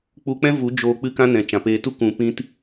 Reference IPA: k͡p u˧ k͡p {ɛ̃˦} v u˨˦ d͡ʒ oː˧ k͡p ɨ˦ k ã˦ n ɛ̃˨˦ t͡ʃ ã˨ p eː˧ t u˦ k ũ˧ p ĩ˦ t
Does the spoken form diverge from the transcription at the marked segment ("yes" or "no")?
no